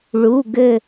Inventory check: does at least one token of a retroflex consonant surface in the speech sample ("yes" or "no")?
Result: yes